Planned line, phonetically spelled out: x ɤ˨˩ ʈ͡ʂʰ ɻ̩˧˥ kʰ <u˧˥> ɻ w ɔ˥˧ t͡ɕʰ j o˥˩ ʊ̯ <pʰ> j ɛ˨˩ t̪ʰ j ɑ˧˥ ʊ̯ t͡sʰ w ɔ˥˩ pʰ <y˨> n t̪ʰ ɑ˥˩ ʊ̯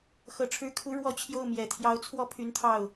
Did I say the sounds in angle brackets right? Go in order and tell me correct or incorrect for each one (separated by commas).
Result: correct, incorrect, incorrect